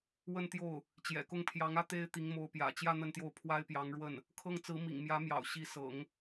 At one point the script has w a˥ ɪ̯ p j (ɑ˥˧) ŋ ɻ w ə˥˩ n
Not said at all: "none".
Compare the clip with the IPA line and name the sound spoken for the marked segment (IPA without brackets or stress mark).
ɑ˧˥